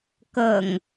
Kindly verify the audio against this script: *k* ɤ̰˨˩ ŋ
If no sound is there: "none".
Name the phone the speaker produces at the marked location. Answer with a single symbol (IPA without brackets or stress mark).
k